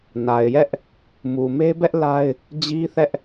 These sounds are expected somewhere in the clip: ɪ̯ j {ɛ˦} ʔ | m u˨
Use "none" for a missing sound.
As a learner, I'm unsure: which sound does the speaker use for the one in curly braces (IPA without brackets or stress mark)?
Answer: ɛ˦